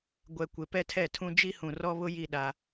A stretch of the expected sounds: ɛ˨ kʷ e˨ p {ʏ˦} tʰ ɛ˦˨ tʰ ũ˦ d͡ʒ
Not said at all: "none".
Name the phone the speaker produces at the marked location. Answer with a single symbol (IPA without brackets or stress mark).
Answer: ɛ˦